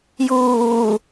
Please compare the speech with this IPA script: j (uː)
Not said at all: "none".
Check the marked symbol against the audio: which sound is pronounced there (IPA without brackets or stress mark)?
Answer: uː